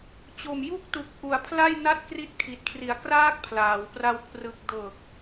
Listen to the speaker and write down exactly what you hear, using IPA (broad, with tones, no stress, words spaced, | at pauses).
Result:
t͡ɕo˨˩m ju˥˩k̚tu˨˩k̚ ʔu˨˩a̯pʰla˥˩j na˥˩t̚kri˦˥t̚kʰi˨˩t̚kʰri˨˩a̯ kraː˥˩k̚pʰlaː˩˦wpra˧w kʰrɯ˨˩k̚dɤː˨˩k̚